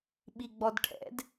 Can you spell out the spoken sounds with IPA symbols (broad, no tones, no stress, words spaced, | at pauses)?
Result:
ɓiɡ͡bɔdʈʰɛ̰d